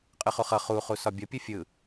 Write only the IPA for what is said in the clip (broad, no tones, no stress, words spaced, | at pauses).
qʼɯχuχʌ χu χusɒbʲʌpʲɯ fʲɯ